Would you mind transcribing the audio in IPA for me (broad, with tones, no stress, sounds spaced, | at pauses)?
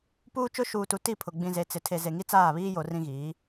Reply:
p uː˦ t͡ʃ ʊ˦ ʃ uː˨ t u˨ t i˦˨ pʰ ʊ˨ ɡ͡b ĩ˨ z e˨ t͡s ɪ˨ tʰ e˨ z e˨ ŋ i˦ t͡s aː˦˨ β iː˦ j o˨ r ĩ˦ ɣ iː˨˦